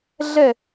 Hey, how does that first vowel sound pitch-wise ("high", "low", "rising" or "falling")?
falling